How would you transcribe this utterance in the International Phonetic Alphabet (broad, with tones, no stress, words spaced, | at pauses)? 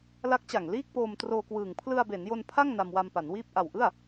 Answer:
la˦˥k̚t͡ɕa˨˩ŋliː˥˩k̚poː˧m troː˧kwɯː˨˩ŋ pʰlɯ˧a̯be˩˦njo˧n pʰa˥˩ŋ na˧mwa˧mpa˩˦nwiː˥˩p̚ ʔa˨˩wʔɯ˥˩a̯